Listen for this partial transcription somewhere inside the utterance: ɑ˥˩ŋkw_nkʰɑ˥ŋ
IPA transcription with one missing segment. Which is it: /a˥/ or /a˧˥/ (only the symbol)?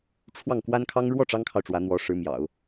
a˥